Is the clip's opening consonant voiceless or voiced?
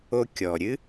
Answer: voiceless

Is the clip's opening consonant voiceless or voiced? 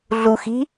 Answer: voiced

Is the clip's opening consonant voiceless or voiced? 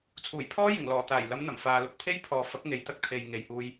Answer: voiceless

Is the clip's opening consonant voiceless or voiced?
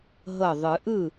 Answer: voiced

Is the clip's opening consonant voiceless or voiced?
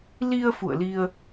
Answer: voiced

